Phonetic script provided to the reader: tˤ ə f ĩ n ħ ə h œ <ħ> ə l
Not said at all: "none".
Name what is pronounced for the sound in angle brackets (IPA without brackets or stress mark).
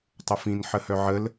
ʕ